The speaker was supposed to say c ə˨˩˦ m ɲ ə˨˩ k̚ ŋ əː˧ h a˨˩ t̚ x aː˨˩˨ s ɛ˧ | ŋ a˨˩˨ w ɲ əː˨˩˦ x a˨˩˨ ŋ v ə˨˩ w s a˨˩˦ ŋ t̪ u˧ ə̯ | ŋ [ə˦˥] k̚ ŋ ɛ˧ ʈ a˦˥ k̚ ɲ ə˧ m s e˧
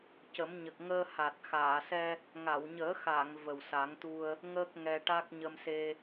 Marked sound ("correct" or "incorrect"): incorrect